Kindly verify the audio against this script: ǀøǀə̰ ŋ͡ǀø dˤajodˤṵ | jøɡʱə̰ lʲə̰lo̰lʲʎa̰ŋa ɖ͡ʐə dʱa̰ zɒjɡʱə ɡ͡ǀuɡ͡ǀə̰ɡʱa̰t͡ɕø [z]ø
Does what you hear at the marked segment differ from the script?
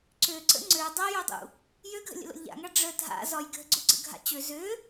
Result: no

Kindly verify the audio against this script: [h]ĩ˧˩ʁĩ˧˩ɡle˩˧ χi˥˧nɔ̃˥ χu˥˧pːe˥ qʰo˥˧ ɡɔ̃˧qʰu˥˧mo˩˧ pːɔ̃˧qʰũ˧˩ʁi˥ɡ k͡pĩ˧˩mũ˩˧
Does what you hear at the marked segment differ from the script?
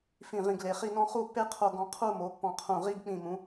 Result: yes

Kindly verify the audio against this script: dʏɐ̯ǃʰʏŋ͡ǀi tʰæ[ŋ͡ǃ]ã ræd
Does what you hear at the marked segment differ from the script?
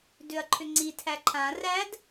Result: yes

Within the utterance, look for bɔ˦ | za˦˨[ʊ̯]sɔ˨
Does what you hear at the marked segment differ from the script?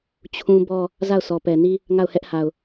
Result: no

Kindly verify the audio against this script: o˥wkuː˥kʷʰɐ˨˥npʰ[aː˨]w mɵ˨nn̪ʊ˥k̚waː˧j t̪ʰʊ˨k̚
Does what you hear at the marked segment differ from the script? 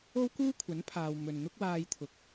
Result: no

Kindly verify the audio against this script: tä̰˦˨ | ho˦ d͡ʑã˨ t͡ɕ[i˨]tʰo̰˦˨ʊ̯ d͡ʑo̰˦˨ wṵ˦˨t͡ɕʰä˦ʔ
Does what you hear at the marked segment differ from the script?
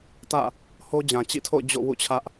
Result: yes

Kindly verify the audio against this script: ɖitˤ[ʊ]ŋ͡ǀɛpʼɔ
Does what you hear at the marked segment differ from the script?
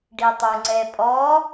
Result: yes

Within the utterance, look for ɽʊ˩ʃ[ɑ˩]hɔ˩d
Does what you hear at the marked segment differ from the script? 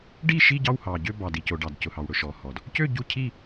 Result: yes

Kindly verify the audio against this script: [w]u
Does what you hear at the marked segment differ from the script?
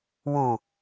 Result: no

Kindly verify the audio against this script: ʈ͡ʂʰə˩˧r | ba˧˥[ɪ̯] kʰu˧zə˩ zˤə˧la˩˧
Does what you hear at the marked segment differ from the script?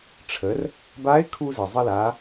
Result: no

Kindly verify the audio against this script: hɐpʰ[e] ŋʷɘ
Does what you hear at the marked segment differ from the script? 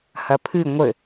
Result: yes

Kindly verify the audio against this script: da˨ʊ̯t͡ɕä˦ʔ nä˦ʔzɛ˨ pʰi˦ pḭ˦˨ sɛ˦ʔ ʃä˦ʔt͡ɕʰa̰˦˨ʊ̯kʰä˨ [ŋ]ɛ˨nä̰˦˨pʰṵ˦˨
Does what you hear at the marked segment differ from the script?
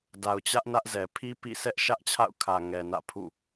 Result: no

